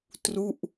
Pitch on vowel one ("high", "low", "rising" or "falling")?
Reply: falling